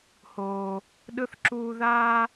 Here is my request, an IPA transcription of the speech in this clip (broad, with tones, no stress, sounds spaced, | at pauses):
h oː˨ | ɗ ɯ˨ θ ǁ uː˨ ð aː˦